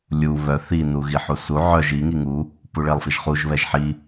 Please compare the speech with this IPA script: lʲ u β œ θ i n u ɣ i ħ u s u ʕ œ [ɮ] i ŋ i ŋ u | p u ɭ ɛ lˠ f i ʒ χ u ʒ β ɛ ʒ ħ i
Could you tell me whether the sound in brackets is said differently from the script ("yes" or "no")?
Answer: yes